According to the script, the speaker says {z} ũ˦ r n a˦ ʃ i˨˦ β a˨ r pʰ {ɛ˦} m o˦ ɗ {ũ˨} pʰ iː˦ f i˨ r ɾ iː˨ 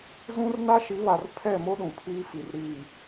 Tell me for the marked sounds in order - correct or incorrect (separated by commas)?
correct, incorrect, correct